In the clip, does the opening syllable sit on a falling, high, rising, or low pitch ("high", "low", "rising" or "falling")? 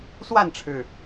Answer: falling